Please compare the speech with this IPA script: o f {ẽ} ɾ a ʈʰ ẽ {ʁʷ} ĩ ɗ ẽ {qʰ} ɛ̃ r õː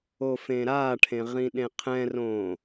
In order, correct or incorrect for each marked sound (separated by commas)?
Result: correct, incorrect, correct